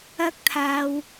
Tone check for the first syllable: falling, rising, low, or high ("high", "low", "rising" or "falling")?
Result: high